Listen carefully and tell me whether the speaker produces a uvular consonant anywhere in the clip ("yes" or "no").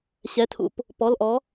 no